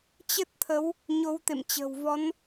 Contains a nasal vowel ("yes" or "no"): no